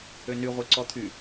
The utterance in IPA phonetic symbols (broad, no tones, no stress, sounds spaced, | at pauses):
ø n y ʁʷ e ǀ ɔ t̪ʰ y